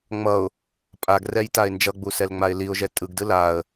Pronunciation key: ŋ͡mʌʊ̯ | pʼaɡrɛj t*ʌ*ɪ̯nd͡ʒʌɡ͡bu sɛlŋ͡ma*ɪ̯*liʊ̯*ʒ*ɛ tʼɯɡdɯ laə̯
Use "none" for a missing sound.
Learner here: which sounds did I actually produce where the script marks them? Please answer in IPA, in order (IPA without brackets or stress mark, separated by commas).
a, ɪ̯, ʒ